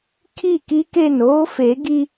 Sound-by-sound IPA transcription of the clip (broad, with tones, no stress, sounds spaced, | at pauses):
kʰ i˦˨ k i˦ k e˦˨ n oː˦ f e˨˦ ɡ i˦